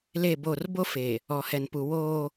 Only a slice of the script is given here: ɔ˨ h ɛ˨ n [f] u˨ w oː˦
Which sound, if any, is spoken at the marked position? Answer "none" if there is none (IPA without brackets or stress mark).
p